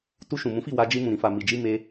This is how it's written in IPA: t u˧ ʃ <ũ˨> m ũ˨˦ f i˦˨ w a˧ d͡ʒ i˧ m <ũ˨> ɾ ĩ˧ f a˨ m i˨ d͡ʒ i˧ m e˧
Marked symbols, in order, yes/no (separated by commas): yes, yes